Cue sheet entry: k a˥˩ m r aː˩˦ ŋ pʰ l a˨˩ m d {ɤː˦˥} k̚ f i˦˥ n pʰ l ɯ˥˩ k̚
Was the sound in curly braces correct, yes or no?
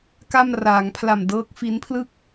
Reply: yes